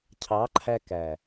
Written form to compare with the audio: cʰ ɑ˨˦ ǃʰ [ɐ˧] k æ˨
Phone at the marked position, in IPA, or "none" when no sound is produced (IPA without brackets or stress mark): æ˧